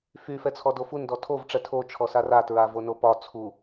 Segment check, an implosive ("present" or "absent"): absent